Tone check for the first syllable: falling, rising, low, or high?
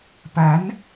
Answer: rising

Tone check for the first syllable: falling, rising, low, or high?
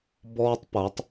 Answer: high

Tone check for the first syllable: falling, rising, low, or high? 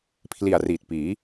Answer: low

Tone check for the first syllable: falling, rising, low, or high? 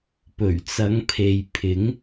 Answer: low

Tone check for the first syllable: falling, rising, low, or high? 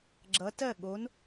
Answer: rising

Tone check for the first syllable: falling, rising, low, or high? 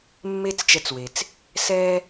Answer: high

